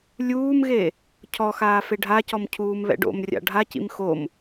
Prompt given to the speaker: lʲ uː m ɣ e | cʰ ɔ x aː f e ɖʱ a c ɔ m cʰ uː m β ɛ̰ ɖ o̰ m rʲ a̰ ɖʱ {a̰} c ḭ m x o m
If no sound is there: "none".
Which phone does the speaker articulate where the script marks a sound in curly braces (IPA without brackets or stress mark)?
a